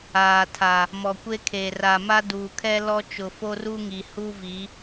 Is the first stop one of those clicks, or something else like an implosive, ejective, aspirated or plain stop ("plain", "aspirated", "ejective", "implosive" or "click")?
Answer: aspirated